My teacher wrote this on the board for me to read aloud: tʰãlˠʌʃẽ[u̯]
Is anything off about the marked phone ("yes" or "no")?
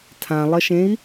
yes